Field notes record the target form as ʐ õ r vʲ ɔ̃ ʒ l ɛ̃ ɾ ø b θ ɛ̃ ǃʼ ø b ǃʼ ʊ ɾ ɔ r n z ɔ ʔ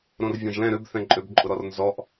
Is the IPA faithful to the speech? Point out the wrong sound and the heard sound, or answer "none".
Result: ʐ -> ɾ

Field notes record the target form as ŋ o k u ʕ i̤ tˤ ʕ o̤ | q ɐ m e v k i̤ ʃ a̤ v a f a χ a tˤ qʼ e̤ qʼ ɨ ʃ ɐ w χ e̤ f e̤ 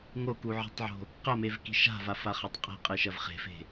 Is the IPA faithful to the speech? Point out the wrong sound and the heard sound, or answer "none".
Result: w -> v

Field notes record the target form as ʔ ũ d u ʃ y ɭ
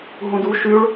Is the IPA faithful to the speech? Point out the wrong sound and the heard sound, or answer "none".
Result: ʔ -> ɦ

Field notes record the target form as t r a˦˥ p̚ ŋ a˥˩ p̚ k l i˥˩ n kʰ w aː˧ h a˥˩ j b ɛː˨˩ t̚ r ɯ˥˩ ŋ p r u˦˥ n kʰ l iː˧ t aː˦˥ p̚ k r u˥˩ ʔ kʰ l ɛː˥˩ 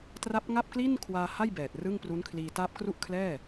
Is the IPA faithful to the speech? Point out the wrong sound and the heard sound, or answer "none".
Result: none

